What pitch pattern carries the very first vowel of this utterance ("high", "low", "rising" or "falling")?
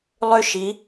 high